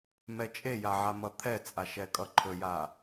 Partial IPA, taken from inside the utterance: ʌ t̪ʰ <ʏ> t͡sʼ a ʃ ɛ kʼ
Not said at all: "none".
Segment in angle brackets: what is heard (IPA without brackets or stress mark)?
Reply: ɛ